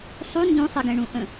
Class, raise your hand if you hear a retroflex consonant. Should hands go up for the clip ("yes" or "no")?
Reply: yes